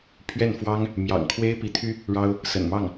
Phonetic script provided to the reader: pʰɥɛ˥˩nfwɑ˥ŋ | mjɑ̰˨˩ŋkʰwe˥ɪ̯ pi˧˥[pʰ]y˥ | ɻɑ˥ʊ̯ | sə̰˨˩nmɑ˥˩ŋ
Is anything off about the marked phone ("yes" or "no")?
yes